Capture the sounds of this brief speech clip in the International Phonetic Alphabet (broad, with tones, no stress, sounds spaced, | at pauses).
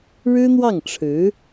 ɻ ɻ̩˥ n̪ w ɑ˥˩ ŋ ʈ͡ʂʰ ɻ̩˧˥